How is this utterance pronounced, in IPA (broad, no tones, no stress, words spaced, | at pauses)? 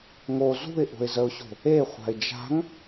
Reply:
ŋo zṳɪ̯ʔo̤ɪ̯zəʊ̯ɕo̤ | eχʷa̤ɪ̯ d͡ʒa̤ŋ